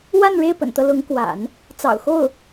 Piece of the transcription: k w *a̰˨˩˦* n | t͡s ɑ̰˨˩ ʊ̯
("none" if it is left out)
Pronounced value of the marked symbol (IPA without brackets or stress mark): a̰˨˩˦